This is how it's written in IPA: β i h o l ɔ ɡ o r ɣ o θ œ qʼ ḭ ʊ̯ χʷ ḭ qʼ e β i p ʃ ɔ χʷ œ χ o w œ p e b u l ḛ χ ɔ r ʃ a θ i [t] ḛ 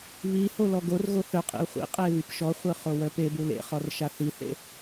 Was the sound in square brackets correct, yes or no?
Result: no